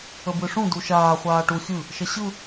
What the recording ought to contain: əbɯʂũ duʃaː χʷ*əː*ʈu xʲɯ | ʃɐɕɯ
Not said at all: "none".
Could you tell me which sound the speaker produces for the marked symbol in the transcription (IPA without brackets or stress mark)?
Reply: aː